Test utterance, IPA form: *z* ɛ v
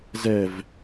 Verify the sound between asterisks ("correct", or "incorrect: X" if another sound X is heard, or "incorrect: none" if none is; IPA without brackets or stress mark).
correct